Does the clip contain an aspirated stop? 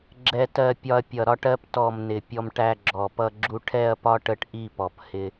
yes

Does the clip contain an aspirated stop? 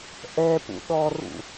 no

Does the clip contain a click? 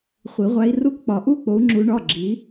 yes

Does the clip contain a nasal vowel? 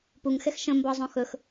yes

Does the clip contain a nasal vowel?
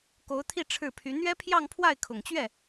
no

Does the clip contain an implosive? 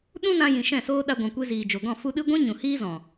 yes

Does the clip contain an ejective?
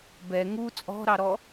yes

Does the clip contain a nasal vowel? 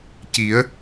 no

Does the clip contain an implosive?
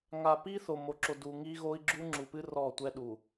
yes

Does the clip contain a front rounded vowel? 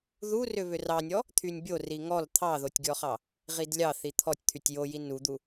yes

